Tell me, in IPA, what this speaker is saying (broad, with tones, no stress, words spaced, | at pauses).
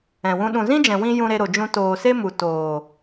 ɛ̃˨wũ˧ ɗũ˨zĩ˦d͡ʒɛ̃˨wĩ˧ jũ˧ɾe˧ɾo˨d͡ʒũ˧ toː˨ se˦mu˨ toː˨